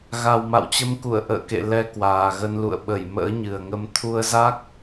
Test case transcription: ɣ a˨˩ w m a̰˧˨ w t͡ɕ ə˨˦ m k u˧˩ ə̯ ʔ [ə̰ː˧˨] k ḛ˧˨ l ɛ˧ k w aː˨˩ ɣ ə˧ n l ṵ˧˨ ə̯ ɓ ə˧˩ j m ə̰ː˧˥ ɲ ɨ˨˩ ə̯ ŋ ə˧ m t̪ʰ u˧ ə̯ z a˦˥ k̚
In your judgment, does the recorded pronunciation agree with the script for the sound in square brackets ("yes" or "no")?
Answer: yes